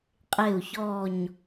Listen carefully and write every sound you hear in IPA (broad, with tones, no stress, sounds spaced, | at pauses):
qʼ e˥˩ u̯ ç ɔ˥˩ ɲ